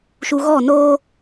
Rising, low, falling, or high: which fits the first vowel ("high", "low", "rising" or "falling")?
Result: low